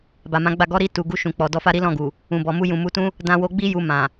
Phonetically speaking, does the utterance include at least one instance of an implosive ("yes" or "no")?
no